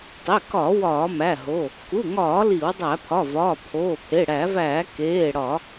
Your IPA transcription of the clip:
tˤ e˩˧˩ k ɒ˧˩˧ w ɒː˧˩˧ m æ˩˧˩ ɦ o˩˧˩ | k u˩˧˩ ŋ ɒː˧˩˧ l i˧˩˧ w dˤ æ˧˩˧ pʰ ɒ˩˧˩ v ɒː˩˧˩ pʰ oː˩˧˩ pʰ e˩˧˩ ɽ æ˧˩˧ v æː˧˩˧ k eː˩˧˩ ɽ ɒ˧˩˧

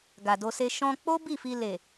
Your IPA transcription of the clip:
ɡ a˨ d o˧ s e˧ ʃ ɔ̃˧ k͡p o˦ b i˦˨ f i˧ l e˨

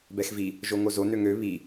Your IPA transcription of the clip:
b ɛ x v i | ʒ o ŋ o z o n ø ŋ ø β i

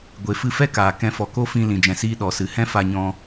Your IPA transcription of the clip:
ɡʷ e˨ f ɨ˧ f ɛ˦ k aː˨ k ɛ̃˧ f ɔ˨ k o˦ f ĩ˧ l ĩ˨ d͡ʒ ɛ̃˨ s iː˧ ɗ ɔ˨ s ɨ˨ h ɛ̃˦ f a˧ ɲ ɔ̃˧

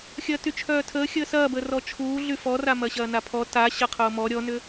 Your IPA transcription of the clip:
xʲ ɐː t y t͡ʃʰ œː tʰ əː xʲ əː s ɐː b əː r ɔ t͡ʃʰ uː ɮ y f ɔ r a m ɐ ɕ ɐː n a pʰ ɔ t a ɕ ɐ qʰ ʊː m ɔ ɾʲ ɔ n ʏ

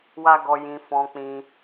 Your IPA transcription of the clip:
w a˦ ɡ ɔ˧ j ĩ˧ f ɔ̃˧ k͡p ĩ˧

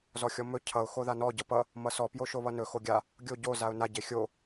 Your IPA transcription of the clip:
z ɔ xʲ ɔ m ɵ cʰ ʌ ʊ̯ x o ð a n ɔ ɟ ʌ p ʌ | m ʌ s ɔ p j o ʃ o β ʌ n ɵ x o ɡʲ a | ɡʲ o ɟ o z a ʊ̯ n a ɟ e xʲ o

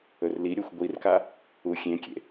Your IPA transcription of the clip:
ɵ r l i ɾʲ ɵ xʷ ɡʷ i r k a | u xʲ ẽ kʲ ḛ

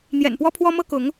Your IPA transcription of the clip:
n̪ j ɛ̰˨˩ n p w ɔ˦ pʰ w ɔ˦ m ɤ˦ k ʊ˨˦ ŋ

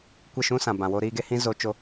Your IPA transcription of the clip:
kʷ e˦˨ ʃ ũ˧ s ã˨ b ã˨ w oː˧ ɾ iː˧ ɡ e˧ h ĩ˧ z o˧ t͡ʃ o˦

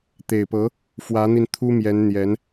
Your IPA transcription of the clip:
t̪ e˨˩ ɪ̯ p ɤ˧˥ | f w ä˧˥ n̪ i˧ n t̪ʰ u˥ m j ɛ˧˥ n n̪ j ɛ˧˥ n

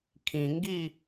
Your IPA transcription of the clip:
kʰ ĩ ŋ ɡ i

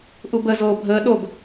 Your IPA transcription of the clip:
ʔ u b ə z oː bʱ əː ɗ o ɡ

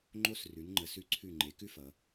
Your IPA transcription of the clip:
ŋ͡ǃ o˧ s r ʉ˩˧ n ŋ͡ǃ ə˩˧ s ʉ˧˩ ǀʰ ʉ˧˩ ŋ͡ǃ e˩˧ k ʉ˥ f ʌ˩˧

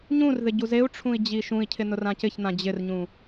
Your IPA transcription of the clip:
ɲ ũ r ð ɪ ɟ u z e u̯ ʈ͡ʂʰ ũ i̯ d͡ʑ i ʃ ũ i̯ cʰ ɪ n ʊ r ã c ɪ ç n̪ ã d͡ʑ ɪ r ɲ ũ

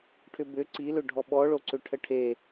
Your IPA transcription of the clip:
ʈʰ ʏ b ʏ ǀ i l ʏ ɖʱ ɔ ɓ ɔ ɭ o ǀ ʏ ʈʰ ə ʈʰ e

